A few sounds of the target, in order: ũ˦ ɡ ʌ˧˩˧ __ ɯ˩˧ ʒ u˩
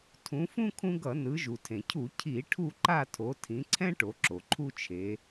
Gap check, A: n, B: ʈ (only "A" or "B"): A